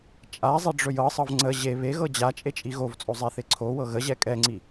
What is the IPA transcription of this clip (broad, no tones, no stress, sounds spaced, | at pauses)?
t͡ʃʼ a zˤ e ɖ͡ʐ ɵ j ɤ sˤ ɤ v ŋ͡ǀ ə ʑ e β e ɣ ɤ d͡ʑ a t͡ʃʼ e t͡ʃʼ i ɣ o v t͡sʼ o zˤ ɛ θ e ǀʰ o w ɤ ɣ ə ʑ ɛ kʼ ɛ ŋ͡ǀ i